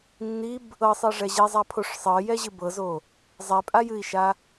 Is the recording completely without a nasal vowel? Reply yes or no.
yes